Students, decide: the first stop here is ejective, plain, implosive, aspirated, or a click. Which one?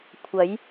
aspirated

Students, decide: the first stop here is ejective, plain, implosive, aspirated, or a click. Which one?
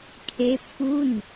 aspirated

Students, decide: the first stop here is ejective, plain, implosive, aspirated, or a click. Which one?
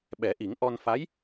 implosive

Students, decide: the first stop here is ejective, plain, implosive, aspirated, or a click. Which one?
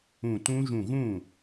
plain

